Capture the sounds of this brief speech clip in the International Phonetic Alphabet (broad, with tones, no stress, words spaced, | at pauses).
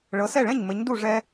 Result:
ɭɤ˩˥sɛ˥˩ɭɛ̃˥˩ɲ mɘ˩˥ɲdu˥˩ʐɛ˧